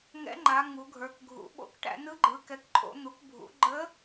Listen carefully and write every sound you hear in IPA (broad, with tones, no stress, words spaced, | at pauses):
ŋɛ̰˧˥ŋ͡ǃa˩˧ ŋu˩˧ɡʱə˞˩˧k ɡʱṵ˩˧ɓo̰˧˥kʈæ̰˩˧ nɯ˧˥ɡ͡ǃɯ˩˧kɛ˩˧kǃʼo̰˩˧ n̪u˩˧kbʱṵ˩˧ɡ͡ǃə˧˥